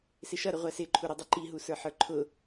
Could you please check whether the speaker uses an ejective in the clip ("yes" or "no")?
no